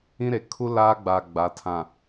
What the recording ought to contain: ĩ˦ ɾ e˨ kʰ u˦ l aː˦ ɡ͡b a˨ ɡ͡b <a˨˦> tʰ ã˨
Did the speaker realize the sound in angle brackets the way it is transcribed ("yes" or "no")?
yes